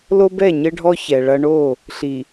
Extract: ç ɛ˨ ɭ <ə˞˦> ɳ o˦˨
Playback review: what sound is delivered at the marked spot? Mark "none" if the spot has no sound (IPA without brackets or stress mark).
ɐ˦